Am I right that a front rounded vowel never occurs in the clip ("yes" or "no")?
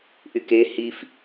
no